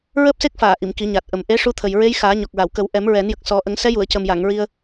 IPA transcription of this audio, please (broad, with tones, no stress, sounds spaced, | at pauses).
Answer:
ɹ əː˦˥ p̚ s e˦˥ k̚ f aː˨˩˨ ʔ i˨˩˨ m k i˨˩˦ ɲ a˨˩ t̚ ʔ ə˨˩ m ʔ e˧˥ ʂ u˧˥ t̪ʰ ə˨˩ j ɹ e˧˥ j x aː˨˩˦ ɲ ɔ˨˩ k̚ ɹ a˨˩˨ w k ə˨˩˦ w ʔ ɛ˨˩˦ m ɹ ɛ˨˩˦ n j ə˨˩ k̚ s ɔ˨˩˦ ʔ ə˨˩˦ ŋ s ɛ˧˥ j u˨˩˨ ə̯ c ə˨˩ m j a˨˩˨ ŋ ɹ i˧ ə̯